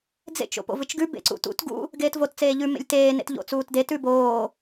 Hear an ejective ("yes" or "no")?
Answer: no